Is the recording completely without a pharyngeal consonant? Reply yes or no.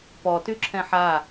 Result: no